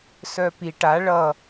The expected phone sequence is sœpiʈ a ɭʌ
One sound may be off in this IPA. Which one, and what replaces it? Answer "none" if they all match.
none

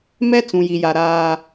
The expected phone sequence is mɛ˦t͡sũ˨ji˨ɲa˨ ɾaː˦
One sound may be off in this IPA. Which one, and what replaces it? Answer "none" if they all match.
ɲ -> j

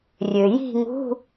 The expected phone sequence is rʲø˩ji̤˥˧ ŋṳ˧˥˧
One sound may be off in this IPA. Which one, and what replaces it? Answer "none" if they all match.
none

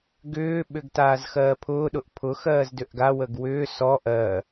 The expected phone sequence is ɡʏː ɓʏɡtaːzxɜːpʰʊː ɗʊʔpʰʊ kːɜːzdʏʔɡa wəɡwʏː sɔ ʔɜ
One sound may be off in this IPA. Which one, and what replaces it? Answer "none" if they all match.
kː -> x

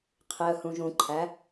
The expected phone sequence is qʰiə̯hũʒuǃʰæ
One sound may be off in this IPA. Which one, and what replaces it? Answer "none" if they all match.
u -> ũ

